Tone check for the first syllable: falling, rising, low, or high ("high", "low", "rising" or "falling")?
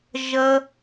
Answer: high